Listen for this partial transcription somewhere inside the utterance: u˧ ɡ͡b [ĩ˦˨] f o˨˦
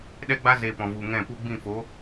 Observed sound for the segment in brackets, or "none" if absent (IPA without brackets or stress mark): ĩ˦˨